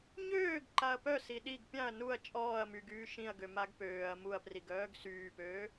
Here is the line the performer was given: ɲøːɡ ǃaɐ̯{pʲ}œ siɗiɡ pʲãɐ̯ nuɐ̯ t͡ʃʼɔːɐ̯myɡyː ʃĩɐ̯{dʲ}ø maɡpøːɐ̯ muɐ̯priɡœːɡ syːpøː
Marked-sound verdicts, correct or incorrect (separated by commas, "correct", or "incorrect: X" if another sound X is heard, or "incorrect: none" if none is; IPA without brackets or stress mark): incorrect: p, incorrect: ɡ